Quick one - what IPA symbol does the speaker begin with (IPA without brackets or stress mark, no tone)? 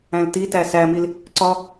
æ̃